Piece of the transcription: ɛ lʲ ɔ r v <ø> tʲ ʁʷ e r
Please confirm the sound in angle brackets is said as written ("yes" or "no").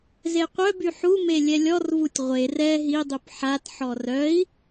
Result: no